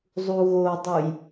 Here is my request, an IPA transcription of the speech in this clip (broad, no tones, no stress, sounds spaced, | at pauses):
zˤ u ɣ o dˤ u j